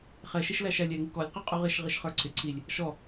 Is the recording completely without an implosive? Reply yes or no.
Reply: yes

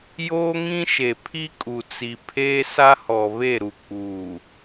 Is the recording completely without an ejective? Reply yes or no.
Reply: no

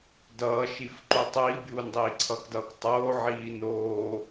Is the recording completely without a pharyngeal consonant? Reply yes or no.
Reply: no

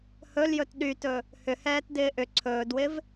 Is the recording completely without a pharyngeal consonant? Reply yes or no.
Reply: yes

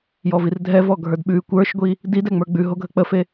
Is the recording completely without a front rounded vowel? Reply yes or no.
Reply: yes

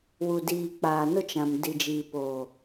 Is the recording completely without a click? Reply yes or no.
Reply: yes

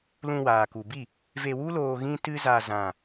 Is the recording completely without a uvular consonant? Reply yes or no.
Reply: yes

